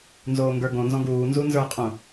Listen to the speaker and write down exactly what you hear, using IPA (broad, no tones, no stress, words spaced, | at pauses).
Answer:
nzoːŋɡə˞ɡõ nzɔ̃ɡuː nzunzə˞qʼũ